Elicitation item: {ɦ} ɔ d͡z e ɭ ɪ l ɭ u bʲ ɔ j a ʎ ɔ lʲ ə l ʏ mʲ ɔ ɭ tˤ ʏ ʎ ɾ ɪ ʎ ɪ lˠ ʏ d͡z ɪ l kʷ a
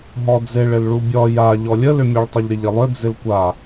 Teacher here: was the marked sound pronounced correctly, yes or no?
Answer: yes